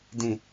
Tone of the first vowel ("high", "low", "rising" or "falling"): falling